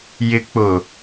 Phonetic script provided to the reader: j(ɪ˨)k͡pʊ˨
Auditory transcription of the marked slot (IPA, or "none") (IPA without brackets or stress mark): ɪ˨